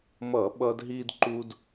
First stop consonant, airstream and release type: implosive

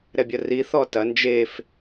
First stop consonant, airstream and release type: plain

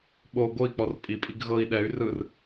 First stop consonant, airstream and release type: implosive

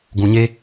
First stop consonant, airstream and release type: plain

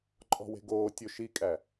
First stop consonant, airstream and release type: click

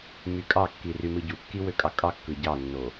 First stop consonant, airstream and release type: ejective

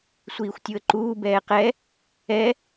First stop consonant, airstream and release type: plain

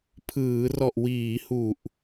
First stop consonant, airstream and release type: aspirated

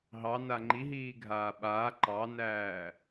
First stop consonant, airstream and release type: click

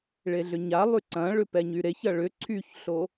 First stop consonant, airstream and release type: click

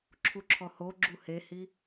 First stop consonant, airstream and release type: click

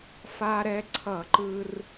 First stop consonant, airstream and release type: click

